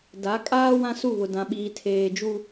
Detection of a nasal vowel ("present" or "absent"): present